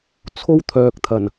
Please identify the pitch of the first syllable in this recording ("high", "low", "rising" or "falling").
high